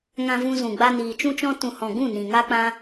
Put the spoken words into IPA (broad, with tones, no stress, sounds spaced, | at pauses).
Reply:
ŋ ã˧ v ũ˧ z ũ˨ ɡ͡b a˧ n iː˨ t͡ʃ ũ˦ t͡ʃ ɔ̃˦ t ũ˨ h ɔ̃˨ ɡ ũ˦˨ n ĩ˨ ŋ a˦ k͡p ã˦